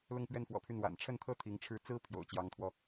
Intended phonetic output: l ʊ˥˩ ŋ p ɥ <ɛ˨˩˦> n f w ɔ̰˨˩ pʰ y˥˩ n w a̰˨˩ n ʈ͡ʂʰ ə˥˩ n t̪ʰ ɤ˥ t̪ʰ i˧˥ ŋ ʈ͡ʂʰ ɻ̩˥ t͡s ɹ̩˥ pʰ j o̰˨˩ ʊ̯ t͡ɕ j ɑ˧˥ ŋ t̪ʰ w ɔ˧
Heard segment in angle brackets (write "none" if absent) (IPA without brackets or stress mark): ɛ˥